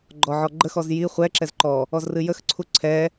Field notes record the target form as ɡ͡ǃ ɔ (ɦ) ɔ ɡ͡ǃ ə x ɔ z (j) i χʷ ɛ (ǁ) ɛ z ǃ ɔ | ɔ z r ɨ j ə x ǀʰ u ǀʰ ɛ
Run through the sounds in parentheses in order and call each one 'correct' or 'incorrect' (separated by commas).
incorrect, correct, correct